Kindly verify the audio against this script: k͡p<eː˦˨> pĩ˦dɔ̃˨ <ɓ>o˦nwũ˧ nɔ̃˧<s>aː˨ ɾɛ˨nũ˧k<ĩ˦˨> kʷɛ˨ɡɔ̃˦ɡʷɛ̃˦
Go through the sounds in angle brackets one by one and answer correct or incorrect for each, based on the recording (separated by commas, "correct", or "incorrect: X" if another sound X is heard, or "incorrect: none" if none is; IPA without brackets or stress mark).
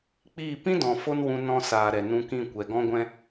incorrect: iː˦˨, incorrect: f, correct, correct